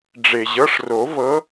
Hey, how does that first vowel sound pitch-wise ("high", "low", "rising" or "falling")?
low